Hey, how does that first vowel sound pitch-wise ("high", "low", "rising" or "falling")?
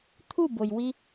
falling